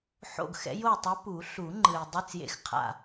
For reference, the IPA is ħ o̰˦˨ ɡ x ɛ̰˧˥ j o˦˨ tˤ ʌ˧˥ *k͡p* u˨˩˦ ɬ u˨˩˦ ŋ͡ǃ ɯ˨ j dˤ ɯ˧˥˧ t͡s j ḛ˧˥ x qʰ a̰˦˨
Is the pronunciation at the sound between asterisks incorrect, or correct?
incorrect